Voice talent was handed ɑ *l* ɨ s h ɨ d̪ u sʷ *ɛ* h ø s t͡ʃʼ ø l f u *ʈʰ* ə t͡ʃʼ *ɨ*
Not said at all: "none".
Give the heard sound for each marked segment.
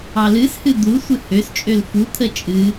l, ɨ, t̪ʰ, ɨ

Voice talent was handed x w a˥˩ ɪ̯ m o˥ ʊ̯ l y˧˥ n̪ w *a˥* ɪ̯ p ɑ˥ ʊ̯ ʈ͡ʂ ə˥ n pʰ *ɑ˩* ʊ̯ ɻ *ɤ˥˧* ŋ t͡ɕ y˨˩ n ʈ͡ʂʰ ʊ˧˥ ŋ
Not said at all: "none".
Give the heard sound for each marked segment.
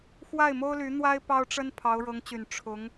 a˥, ɑ˧˥, ɤ˧˥

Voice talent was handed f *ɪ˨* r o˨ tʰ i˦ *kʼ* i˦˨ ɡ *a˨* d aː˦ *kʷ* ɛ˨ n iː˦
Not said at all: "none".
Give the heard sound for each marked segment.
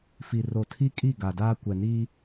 i˨, kʼ, a˨, kʷ

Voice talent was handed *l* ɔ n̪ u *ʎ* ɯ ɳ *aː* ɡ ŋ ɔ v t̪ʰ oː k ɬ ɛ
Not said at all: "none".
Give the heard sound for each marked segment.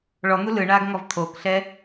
ɭ, l, aː

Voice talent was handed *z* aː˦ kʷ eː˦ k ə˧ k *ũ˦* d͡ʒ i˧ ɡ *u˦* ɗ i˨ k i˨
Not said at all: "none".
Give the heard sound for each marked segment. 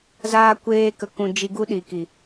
z, ũ˧, u˦

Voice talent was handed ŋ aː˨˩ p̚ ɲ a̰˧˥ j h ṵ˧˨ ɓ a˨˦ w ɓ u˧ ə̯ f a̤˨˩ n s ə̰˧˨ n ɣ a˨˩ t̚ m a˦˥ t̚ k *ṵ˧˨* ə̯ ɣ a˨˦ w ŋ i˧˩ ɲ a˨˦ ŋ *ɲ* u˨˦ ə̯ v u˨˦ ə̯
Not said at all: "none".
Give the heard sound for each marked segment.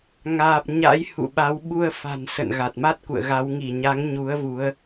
ṵ˧˨, ɲ

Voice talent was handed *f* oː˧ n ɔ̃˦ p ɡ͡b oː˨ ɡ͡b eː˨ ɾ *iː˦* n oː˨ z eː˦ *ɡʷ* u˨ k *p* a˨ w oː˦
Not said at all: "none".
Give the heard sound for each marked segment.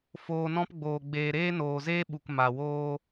f, eː˦, ɓ, m

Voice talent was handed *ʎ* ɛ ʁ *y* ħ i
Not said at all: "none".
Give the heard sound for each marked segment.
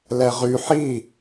l, y

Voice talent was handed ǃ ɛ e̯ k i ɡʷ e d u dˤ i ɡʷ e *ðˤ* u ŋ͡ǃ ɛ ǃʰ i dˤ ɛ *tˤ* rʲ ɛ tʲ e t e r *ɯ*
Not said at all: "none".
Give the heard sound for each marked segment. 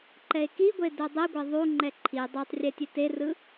ðˤ, tˤ, ɯ

